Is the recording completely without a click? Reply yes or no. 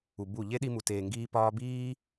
yes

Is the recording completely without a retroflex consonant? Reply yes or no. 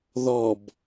yes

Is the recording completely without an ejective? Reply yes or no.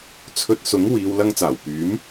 yes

